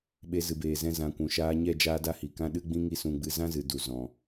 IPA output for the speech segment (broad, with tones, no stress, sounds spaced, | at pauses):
ɓ e˧ z ɨ˨ b eː˨ z ɛ̃˧ z ã˨˦ kʷ ũ˨ ʃ aː˧ ɲ ɛ˦˨ d͡ʒ aː˦ d a˦ h i˨ k ã˦ ɗ ɨ˦ ɡ͡b ĩ˦ ŋ i˦ s ũ˧ ɡ͡b ɨ˧ z ã˦ z ɨ˨ d u˨ z ɔ̃˨